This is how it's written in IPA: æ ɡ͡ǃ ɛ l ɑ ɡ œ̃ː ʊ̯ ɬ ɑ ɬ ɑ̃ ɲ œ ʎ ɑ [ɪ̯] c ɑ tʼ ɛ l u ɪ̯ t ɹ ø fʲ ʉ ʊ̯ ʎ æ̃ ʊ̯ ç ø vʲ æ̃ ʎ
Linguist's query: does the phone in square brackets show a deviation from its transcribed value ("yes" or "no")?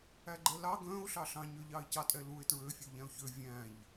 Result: no